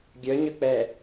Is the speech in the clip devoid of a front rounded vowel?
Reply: no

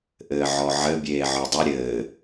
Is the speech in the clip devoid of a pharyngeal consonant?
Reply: no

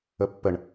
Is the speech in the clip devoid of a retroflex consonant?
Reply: no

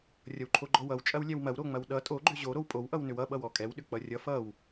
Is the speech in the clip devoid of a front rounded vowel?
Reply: no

